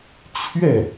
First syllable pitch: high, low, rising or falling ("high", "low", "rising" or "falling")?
falling